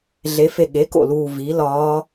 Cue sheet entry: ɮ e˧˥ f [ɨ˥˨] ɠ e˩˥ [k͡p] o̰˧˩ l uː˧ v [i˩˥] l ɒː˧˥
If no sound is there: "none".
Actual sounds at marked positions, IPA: e˥˨, k, i˩˥

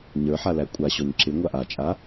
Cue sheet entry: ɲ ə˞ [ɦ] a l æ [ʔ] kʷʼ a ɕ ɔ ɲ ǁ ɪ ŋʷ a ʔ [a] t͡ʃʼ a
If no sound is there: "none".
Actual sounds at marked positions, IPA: ħ, none, a

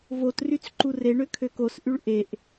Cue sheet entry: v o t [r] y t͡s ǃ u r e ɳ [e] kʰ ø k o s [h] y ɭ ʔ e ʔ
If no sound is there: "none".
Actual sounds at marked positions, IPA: r, ø, ʔ

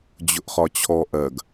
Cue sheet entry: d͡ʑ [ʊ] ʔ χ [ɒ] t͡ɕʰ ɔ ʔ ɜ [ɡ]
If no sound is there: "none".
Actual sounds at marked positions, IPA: ʊ, ɒ, ɡ

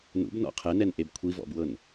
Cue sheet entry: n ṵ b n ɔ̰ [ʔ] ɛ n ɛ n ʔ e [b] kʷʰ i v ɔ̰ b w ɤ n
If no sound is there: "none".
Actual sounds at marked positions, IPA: qʰ, b

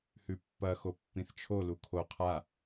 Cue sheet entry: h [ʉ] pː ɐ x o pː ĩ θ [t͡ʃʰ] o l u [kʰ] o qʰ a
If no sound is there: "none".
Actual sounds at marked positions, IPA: ʉ, t͡ʃʰ, kʰ

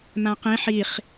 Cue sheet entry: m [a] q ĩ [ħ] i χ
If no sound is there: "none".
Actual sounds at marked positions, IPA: ã, ħ

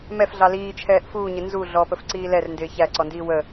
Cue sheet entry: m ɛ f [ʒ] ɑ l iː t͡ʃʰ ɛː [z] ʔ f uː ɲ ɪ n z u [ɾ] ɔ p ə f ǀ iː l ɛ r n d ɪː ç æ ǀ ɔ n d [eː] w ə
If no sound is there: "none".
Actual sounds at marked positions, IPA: ɮ, none, ɮ, iː

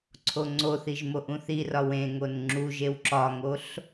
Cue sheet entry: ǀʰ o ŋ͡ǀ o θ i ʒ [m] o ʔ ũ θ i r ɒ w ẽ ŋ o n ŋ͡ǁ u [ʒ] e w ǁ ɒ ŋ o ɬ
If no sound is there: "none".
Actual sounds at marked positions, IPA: m, ʒ

